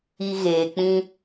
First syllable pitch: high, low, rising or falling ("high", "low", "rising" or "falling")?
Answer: low